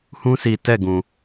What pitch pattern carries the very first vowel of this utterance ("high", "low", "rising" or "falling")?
high